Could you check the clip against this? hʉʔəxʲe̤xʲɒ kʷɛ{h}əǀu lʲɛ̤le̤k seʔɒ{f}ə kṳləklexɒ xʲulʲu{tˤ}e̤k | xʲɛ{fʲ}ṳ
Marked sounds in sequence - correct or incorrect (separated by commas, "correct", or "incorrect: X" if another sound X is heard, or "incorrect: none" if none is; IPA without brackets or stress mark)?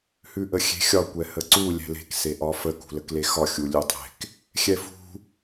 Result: correct, correct, correct, incorrect: f